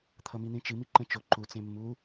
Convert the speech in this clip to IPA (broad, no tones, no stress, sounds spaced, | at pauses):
t̪ʰ ʌ m i n̪ ĩ t͡ʃ ɨ m i ǃ ə̃ t͡ʃ o ǃ u t͡s ẽ mː u